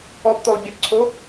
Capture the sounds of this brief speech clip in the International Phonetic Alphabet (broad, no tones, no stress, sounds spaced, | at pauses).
ɔ p t̪ o lˠ bʲ ə p ǀʰ o